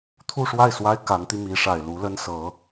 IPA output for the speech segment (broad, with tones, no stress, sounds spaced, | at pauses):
t̪ʰ u˥˧ ʂ w a˥˩ ɪ̯ s w a˥ ɪ̯ k a˧˥ n t̪ i˧ m i˧˥ ʂ a˨˩ ɪ̯ l u˧˥ l ə˥ n s ɤ˧˥